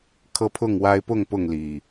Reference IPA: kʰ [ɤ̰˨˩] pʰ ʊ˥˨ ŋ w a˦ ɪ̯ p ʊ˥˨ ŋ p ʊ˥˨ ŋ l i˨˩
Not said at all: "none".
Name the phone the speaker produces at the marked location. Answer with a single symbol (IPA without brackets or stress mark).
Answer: ɤ˦